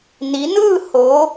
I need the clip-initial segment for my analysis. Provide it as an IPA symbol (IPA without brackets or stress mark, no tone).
n